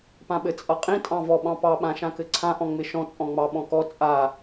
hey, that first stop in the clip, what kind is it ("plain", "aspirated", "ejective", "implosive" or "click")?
plain